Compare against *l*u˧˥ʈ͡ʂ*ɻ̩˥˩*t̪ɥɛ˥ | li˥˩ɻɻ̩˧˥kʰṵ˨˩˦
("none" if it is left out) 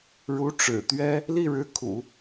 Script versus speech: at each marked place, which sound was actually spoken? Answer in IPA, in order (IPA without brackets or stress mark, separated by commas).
ɻ, ɻ̩˨˩